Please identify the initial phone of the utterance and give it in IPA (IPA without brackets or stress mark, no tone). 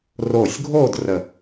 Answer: r